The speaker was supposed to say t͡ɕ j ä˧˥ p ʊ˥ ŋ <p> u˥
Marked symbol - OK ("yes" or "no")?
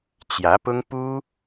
yes